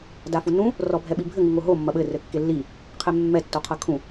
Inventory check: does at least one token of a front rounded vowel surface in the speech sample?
no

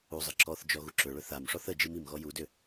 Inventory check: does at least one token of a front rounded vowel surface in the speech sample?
yes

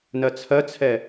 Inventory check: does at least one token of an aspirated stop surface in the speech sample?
yes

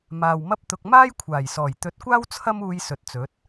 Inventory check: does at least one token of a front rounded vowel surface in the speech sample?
no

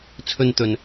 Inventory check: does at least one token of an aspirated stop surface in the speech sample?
yes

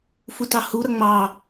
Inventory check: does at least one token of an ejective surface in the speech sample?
no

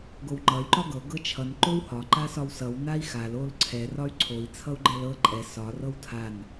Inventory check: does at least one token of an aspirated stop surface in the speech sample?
yes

